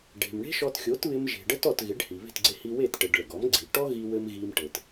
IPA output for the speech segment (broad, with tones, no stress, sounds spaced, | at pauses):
ɖ e̤˩ m ɳ e̤˥ ʃ ɔ˧ t xʲ o˩˥ t β ɪ˧ m ʒ e̤˩ ɖ ə˥ t ɔ˥˩ t ɣ ɪ˩˥ ɖ h i˩ β e̤˥˩ t ɡ͡ǀ e˧ h i˧ w e˥˩ t ʈ ɘ˩ ɖ ɭ ɘ˩ ɡ ɔ˩˥ m ɡ͡ǀ i˩ ʈ ɔ˥ ɣ i˥ w ɘ˥ m ɣ i˧ m ʈ ɘ˩ t